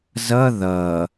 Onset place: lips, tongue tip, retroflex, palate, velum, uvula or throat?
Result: tongue tip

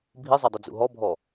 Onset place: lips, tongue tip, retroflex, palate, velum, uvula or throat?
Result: lips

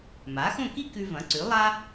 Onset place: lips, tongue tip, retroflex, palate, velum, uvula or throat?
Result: lips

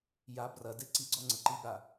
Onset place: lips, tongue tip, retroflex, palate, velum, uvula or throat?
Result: palate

